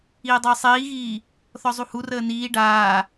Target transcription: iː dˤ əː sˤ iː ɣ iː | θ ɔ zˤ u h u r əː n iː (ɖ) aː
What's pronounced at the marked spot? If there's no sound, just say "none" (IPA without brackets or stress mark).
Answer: ɖ